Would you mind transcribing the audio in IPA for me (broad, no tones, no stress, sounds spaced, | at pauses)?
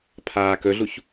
pʰ aː k ɵ ɮ u ç